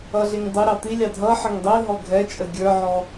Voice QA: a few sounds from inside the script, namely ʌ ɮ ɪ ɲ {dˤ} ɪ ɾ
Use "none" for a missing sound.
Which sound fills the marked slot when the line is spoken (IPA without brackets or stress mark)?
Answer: dˤ